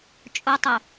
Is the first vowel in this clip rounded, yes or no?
yes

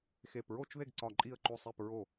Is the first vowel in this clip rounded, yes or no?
no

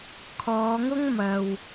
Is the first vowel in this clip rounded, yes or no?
yes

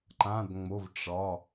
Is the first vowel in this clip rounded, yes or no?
no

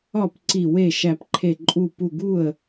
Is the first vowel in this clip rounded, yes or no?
yes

